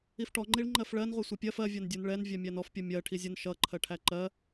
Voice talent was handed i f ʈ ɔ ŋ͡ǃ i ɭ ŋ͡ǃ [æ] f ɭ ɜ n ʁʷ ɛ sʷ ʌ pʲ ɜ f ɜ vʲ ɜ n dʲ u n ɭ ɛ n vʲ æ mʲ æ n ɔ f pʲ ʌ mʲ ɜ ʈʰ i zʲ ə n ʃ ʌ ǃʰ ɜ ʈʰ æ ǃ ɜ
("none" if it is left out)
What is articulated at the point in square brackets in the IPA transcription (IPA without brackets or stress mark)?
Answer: ɜ